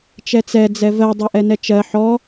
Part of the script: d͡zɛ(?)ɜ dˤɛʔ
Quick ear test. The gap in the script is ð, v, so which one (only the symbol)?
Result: v